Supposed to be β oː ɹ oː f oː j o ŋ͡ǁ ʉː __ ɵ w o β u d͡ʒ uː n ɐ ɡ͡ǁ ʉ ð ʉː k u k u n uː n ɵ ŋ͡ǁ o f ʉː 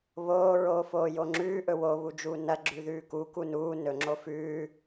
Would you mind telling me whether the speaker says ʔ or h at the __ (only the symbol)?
ʔ